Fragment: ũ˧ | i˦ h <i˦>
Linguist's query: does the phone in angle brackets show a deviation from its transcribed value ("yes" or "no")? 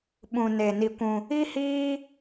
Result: yes